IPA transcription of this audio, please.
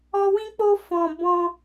ɔ˧ w ĩ˧ k͡p o˧ f ɔ̃˨ b ɔ̃˧

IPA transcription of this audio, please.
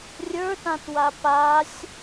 rʲ ə˞ t ã t w a p a sʲ

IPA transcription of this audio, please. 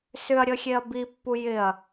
s ʏ ɐ̯ ɾʲ ə xʲ e ɐ̯ b i pː u j ɪ ɐ̯

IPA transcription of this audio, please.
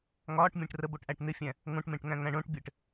ŋ ɒː ʈ mʲ ẽ ʈ r ə b o ʈ ʔ æ ʈ n̪ ɪ fʲ æ̃ | ŋ õ ʈ m ẽ ʈ ŋ æ̃ ŋ æ̃ ɳ õ ʈ bʲ ɘ ʈ

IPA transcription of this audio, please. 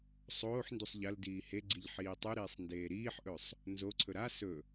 sˤ oː ħ n d u sˤ ʎ ɐ l d iː h e ɡ͡ǀ i ʎ ħ iː tˤ u ɾ iː sˤ n d eː ɾ iː ħ ʔ ɵ sˤ | n z o ǀʰ ɵ ɾ a s ɵ

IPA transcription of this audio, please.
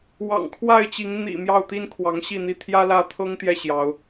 w ɑ̰˨˩ ŋ kʰ w a˥˨ ɪ̯ t͡ɕ i˨˦ ŋ n̪ ḭ˨˩ m j ɑ˥˨ ʊ̯ t̪ i˦ n kʰ w ɑ˨˦ ŋ ɕ i˥˨ n̪ i˥˨ t̪ʰ j ä˦ l ä˥˨ t̪ʰ ɤ˦ ŋ t̪ j ɛ˥˨ ɕ j ɑ˨˦ ʊ̯

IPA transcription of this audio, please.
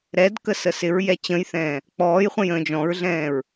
ɾ ɛ d k ə s ə s ɪ ɹ j ɛ t͡ɕ ə̃ j θ ɛ̃ː | k͡p ɔː j χʷ ə̃ j ə̃ː d͡ʒ ɔ̃ ɹ ɮ ɛ̃ː ɹ

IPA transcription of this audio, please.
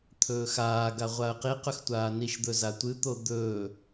t̪ʰ ɵː x aː ɡ a ʁʷ a ə̯ q i q ɵ x tʷ aː n i ʃ d̪ ɵ z a tʷ ɨ t̪ o d̪ ɵː

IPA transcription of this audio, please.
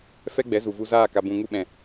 f ɛ˦ ɡ͡b ɛ˨˦ z u˨ v u˧ z aː˦˨ k a˨ b ũ˨ ŋ u˧ ɓ ɛ̃˨

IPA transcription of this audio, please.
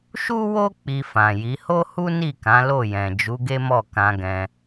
ʃ u˦ w o˦ k͡p i˧ f ã˨ j i˨˦ h o˦ h u˦ n i˦˨ k ã˨˦ l o˦˨ j ɛ̃˨ d͡ʒ u˨˦ ɡ e˦ m ɔ˦˨ k ã˧ ɡ ɛ̃˧

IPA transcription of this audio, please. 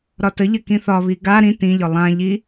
ɾ ɒ t ə ʎ ə k ĩ θ ɒ β i ɡ a ɾ ĩ t ĩ ʎ ɒ lˠ ã ʎ i

